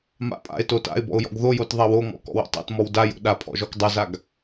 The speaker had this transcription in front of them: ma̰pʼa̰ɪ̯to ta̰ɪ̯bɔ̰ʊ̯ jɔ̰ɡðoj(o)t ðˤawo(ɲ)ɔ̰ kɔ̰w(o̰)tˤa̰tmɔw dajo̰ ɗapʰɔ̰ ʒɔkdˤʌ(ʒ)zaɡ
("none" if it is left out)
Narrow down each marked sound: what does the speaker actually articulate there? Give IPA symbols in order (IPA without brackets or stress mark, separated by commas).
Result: o, ŋ, o̰, none